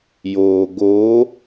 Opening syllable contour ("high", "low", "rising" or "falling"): low